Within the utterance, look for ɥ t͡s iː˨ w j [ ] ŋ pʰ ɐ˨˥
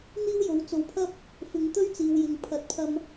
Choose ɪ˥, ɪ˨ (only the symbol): ɪ˨